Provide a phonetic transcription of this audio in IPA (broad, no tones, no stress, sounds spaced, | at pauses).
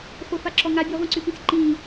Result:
χʷ ə˞ f a ǁ ɔ ŋ a bʲ ɔ ʁʷ ĩ ǀ y p ĩ s ǃ ĩ